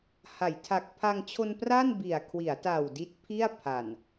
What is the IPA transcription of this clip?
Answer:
ha˩˦jtʰa˨˩k̚ pʰa˧ŋt͡ɕʰo˧n pra˥˩nbi˨˩a̯kʰwi˩˦a̯ta˨˩w di˦˥t̚pʰi˥˩a̯pʰa˨˩n

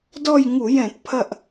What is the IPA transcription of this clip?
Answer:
dɔ˦˨jŋu˧˩˧jɛ̃˧˩˧tpʰɐ˦˨ʔ

